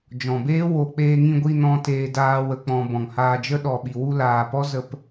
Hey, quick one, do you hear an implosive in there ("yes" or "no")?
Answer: yes